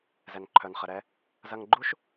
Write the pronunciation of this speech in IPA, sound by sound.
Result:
z ɛ˩ n ǃʰ œ˩ n χ ə˩ ɾ ɛ˧ | z ɐ˧ ŋ ɡ͡ǃ u˥ ʃ

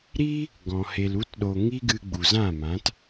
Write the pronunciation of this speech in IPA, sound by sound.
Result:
ɾ i˦ | ɡ ɔ̃˨ h e˨ l u˧ t ɗ o˨ ŋ i˦ ɡ ɨ˧ ɡ͡b u˨ z ã˦˨ m ã˨˦ t

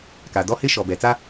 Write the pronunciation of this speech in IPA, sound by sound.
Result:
k a˨ d ɔ˦ h ɪ˦ ʃ ɔ˨ b ɛ˨ t͡s a˦

